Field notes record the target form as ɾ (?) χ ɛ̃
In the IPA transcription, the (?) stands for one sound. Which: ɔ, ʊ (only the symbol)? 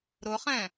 ʊ